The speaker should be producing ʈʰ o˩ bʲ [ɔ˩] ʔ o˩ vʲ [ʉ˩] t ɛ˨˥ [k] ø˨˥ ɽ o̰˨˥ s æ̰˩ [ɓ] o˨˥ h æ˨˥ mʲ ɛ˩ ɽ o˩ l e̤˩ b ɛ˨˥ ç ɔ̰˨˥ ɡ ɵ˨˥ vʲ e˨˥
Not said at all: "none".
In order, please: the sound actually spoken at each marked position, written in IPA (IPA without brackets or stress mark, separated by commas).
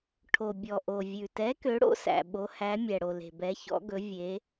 ɔ˩, ʉ˩, k, ɓ